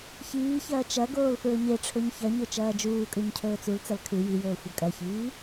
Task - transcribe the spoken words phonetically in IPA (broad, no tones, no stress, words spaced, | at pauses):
çiːçɐː t͡ʃɐ ɡoːlfɹɵɲeʈ͡ʂʰɵɲ çɐɲɵ t͡ʃɐːd͡ʒuːkʼʉɲ cʰɵːt͡sult͡sɐl kʰʉ jijɵː xʷɐkʼɐçiː